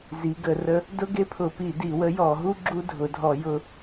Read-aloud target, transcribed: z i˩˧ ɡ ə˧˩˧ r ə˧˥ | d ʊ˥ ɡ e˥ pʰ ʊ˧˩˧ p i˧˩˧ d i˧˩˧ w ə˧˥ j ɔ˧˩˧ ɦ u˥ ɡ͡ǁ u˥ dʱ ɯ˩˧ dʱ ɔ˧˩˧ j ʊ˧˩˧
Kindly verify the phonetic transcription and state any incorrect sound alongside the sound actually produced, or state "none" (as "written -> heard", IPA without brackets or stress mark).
ɯ˩˧ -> ʊ˩˧